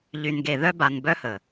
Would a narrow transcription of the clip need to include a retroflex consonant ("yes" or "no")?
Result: no